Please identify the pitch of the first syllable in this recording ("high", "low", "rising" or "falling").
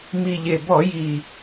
low